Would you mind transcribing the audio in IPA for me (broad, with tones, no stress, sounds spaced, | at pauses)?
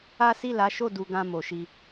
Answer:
a˦ s i˦˨ l a˨˦ ʃ o˦˨ d u˧ ɡ ã˧ m o˨ ʃ i˧